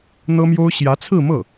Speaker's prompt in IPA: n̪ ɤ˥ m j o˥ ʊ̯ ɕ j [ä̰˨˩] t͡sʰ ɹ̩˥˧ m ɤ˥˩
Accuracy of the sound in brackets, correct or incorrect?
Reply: incorrect